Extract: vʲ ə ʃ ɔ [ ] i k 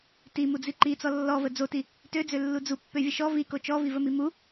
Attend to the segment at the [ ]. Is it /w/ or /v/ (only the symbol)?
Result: v